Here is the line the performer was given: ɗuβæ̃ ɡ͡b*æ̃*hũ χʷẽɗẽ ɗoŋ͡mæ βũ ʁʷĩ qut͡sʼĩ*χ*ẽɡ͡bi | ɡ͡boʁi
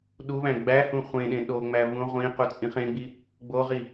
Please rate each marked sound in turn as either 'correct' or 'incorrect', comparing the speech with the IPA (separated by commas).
incorrect, correct